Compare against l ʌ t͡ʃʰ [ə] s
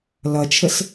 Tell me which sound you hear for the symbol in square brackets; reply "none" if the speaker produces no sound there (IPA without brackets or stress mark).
ə